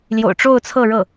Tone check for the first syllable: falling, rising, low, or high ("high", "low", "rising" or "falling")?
low